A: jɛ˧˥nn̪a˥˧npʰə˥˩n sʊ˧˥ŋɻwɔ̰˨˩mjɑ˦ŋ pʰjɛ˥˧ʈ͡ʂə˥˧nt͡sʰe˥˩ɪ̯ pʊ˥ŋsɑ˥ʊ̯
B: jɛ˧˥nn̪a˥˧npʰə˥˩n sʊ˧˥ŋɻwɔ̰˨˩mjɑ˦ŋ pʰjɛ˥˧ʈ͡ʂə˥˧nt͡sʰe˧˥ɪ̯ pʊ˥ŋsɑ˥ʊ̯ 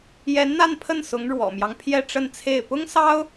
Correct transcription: A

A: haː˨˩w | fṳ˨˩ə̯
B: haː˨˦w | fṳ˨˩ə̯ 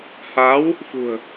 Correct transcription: B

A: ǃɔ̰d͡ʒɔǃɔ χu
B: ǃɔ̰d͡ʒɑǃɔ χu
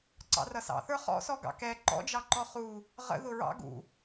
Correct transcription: B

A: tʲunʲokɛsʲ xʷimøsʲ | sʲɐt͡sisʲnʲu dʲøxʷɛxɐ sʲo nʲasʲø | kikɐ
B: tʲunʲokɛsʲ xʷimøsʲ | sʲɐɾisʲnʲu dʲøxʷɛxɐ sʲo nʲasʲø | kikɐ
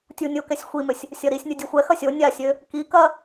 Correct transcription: B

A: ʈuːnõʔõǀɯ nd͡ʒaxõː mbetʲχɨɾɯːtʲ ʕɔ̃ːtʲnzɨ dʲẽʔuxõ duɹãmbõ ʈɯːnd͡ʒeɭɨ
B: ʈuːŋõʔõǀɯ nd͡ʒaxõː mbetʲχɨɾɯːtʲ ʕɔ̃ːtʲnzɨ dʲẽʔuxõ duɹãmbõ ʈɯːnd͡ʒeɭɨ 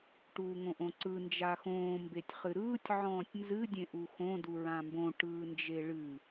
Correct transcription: B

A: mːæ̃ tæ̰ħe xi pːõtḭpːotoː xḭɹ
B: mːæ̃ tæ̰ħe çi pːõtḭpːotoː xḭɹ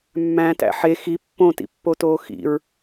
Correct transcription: A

